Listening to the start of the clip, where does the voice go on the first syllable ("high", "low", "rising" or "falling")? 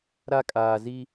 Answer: high